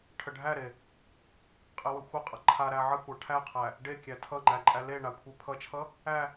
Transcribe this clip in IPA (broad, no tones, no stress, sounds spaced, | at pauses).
ʈʰ ə ɖʱ æ ɾ e | qʼ e w ə xʷ ʌ qʼ ʌ ǃʰ a ɾ æ ʕ ə kʷ a ʈʰ æ qʰ æ | ɖ e kʲ æ tʰ ʌ ŋ͡ǃ æ ǃʼ æ l e ɳ a kʷʰ e pʰ ʌ t͡ʃʰ ʌ | æ